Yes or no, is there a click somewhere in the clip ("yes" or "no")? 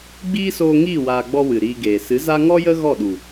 no